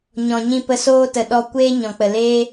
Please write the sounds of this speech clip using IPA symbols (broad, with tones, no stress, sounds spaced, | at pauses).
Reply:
ɲ ɔ̃˨ ɲ ĩ˧ p ə˧ s oː˦ t ə˨ ɗ ɔ˧ kʷ eː˦ ɲ ɔ̃˨ k͡p ə˨ l eː˦